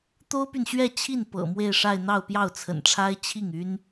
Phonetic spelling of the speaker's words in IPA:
t̪ o˥ ʊ̯ p y˨ n ɕ ɥ ɛ˥˧ t͡ɕʰ i˥˩ n p ɤ̰˨˩ m w e˥˧ ɪ̯ ʂ a˥˧ ɪ̯ n̪ ɑ˥˧ ʊ̯ p j ɑ˥˩ ʊ̯ t͡sʰ ə̰˨˩ n ʈ͡ʂʰ a˥ ɪ̯ t͡ɕʰ i˥˩ ŋ y˥ n

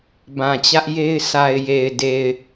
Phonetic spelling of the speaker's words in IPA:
b ã˨ t͡ɕ ä˦ ʔ j e˦ ɪ̯ s a˨ ɪ̯ j e˨ ɪ̯ d e˨ ɪ̯

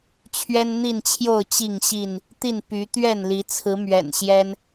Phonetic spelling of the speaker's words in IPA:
t͡ɕʰ ɥ ɛ˦ n n̪ i˥˨ n t͡ɕʰ j o˥˨ ʊ̯ t͡ɕ i˥˨ ŋ ɕ i˥˨ n | t̪ i˥˨ n p y˨˦ t̪ ɥ ɛ˥˨ n l i˨˦ t͡sʰ ɹ̩˨˦ m ɥ ɛ̰˨˩ n ɕ j ɛ˦ n

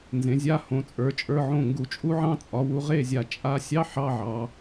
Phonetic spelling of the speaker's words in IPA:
n z ẽ˩˧ zʲ a˧˥˧ h õ˩˧ t͡sʼ ə˞˩˧ t͡ʃʼ ə˞˧˥˧ ʕ õ˥˨ ŋ ɡ u˧˩˧ t͡ʃʼ u˦˥ ʕ ɑ̃˦˥ t͡sʼ ɒ˩˧ w u˩˧ ʁ e˥˨ zʲ a˧˩ t͡ʃʼ a˧˥˧ sʲ ɑ˧˥˧ ħ ɑ˧˥˧ ʕ ɑ˩˧

